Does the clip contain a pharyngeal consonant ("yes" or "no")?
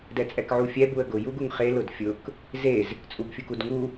yes